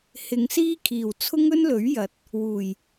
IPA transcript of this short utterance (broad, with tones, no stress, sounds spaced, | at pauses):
h ɪ˨˧ ŋ s iː˥ kʰ iː˨˩ w t͡sʰ ʊ˥ ŋ ɵ˥ n l ɵ˨˥ ɥ j ɐ˨ t̚ | w uː˨˩ j